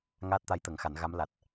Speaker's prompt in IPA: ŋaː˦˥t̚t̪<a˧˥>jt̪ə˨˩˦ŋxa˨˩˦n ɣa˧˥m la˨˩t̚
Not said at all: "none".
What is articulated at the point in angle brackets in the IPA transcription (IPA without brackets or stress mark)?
a˧˥